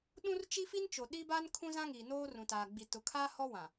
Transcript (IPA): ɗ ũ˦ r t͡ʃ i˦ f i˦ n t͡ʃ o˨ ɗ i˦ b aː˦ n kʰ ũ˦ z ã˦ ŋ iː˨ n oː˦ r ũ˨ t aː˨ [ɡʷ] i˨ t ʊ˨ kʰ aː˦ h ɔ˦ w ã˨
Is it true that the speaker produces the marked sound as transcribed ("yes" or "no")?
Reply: no